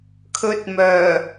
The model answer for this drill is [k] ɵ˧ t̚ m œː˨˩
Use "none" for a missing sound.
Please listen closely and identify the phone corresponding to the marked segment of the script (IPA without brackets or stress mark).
kʰ